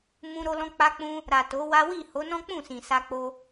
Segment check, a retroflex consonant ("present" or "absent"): absent